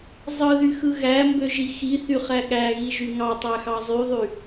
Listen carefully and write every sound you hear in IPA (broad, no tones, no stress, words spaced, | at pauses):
zˤɯðyxɯ ɣæmbøʒi xiθyχæ ɠæɣiʒy ŋɑtˤæxɑ zˤyðˤy